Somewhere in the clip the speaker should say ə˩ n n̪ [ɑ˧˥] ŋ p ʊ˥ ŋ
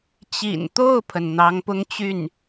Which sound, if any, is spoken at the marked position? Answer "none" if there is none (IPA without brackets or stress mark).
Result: ɑ˧˥